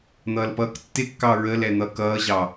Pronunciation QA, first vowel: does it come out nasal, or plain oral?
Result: oral